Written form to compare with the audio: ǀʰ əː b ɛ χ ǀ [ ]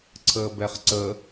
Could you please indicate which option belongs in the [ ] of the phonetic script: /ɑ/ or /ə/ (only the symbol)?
ə